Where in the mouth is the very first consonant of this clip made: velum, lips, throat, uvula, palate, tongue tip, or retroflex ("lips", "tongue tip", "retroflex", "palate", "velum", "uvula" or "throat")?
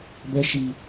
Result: lips